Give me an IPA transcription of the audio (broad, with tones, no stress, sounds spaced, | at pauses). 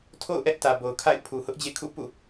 tʰ o̰˦˨ ʊ̯ ʔ ɛ˦ ʔ t ä˨ b o˨ ʊ̯ kʰ a̰˦˨ ɪ̯ pʰ u˨ h ʊ˦ ʔ d͡ʑ ḛ˦˨ kʰ ṵ˦˨ p ṵ˦˨